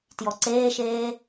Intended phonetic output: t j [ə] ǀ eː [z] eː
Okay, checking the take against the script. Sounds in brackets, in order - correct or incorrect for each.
incorrect: ɔ, incorrect: ʃ

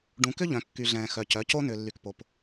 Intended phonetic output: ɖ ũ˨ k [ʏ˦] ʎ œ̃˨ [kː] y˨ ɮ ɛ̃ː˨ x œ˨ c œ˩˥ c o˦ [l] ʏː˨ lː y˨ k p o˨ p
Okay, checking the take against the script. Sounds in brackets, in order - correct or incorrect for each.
correct, correct, incorrect: n

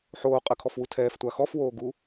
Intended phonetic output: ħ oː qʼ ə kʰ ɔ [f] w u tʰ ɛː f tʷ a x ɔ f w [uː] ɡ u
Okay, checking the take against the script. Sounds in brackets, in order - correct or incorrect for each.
correct, incorrect: oː

